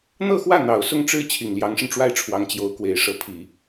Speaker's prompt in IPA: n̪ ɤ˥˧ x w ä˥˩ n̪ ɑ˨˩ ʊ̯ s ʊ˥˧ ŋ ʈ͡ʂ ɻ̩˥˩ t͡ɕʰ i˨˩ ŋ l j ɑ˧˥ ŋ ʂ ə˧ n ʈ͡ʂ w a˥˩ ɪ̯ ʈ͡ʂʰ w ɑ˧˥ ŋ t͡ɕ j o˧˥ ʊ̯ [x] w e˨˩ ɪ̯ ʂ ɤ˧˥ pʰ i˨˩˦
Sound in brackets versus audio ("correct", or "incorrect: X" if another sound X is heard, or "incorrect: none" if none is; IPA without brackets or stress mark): incorrect: k